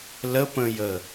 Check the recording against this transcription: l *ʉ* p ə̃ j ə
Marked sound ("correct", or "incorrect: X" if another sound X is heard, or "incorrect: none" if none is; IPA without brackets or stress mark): incorrect: ə